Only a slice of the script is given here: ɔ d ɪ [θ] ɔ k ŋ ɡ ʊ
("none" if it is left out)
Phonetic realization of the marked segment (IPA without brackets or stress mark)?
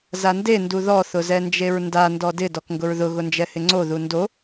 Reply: d